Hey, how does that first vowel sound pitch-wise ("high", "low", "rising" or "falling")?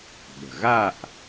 low